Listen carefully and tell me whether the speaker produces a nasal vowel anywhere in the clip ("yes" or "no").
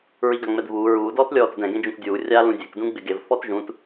yes